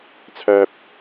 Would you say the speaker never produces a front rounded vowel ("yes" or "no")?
no